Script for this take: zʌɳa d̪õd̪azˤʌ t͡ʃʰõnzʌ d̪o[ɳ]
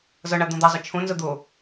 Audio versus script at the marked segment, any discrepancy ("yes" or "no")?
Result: yes